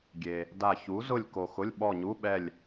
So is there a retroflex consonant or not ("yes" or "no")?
no